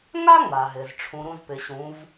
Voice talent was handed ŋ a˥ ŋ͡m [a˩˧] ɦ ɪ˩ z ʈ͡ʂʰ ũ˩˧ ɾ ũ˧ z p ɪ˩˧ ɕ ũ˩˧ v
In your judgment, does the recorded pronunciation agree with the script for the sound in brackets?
no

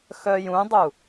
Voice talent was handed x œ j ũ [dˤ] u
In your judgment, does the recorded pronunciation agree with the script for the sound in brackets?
yes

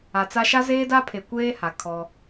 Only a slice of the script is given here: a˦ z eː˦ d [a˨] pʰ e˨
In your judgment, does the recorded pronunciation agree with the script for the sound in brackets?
no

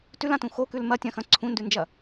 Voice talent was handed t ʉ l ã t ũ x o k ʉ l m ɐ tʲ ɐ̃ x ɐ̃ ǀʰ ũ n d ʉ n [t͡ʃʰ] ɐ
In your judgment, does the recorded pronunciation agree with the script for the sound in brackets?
no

